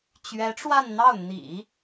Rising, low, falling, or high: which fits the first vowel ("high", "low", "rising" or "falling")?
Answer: rising